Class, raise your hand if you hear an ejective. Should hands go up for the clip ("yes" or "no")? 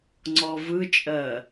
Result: yes